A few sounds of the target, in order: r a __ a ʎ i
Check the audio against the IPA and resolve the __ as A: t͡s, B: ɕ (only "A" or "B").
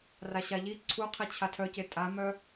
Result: B